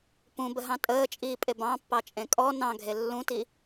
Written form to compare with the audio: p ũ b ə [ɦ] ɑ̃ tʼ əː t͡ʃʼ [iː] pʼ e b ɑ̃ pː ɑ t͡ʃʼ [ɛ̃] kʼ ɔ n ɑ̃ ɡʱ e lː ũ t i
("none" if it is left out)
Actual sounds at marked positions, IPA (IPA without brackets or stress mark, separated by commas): ɦ, iː, ẽ